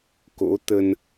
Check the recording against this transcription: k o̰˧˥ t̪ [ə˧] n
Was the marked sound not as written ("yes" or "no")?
no